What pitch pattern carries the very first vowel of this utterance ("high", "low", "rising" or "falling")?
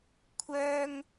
high